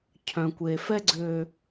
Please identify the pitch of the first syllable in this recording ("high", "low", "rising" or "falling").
low